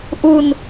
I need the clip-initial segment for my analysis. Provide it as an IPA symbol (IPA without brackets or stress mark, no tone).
ʔ